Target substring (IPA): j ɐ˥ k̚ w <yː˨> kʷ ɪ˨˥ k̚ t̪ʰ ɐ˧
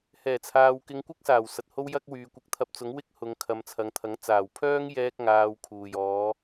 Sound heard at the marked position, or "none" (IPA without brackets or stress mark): yː˨